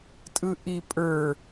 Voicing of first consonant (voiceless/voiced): voiceless